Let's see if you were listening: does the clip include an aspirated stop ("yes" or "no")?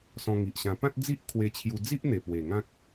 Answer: yes